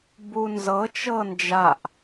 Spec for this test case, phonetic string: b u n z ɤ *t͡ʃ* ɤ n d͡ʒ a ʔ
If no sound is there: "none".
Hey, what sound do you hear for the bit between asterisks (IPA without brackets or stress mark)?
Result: t͡ʃ